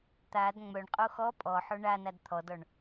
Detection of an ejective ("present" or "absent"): present